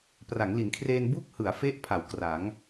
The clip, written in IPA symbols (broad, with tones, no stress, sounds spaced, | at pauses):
p r a˩˦ ŋ l i˩˦ n kʰ r eː˧ n b u˥˩ k̚ h ɯ˩˦ a̯ f e˦˥ ʔ pʰ a˩˦ w k r a˩˦ ŋ